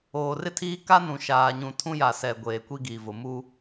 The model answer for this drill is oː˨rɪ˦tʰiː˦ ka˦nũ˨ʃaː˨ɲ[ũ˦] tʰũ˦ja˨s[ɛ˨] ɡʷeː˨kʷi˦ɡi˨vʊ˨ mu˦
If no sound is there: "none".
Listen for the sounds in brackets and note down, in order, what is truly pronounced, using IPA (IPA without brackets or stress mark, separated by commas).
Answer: ũ˨, ɛ˨